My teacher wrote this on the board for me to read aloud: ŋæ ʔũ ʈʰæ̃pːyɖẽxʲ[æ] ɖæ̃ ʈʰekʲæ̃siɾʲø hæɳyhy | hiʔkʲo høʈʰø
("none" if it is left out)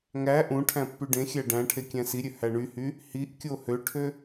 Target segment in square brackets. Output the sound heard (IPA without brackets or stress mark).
æ